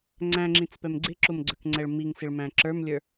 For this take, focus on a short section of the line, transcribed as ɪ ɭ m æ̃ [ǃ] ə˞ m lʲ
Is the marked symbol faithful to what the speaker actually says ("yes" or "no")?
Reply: no